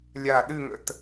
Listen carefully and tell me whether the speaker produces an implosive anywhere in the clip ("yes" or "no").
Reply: yes